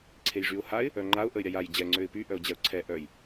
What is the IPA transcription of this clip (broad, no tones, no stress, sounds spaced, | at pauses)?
ǀʰ e j ʐ y ʊ̯ h a ɪ̯ | œ ŋ͡ǃ a ʊ̯ ʔ ə ɪ̯ ɾʲ a j a j d͡ʑ ɛ ŋ͡ǀ ø ɪ̯ p y ʔ œ ʊ̯ d͡ʑ ɛ ʊ̯ ǀʰ ɛ ʔ œ j